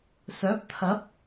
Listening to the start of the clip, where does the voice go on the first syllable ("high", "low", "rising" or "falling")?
rising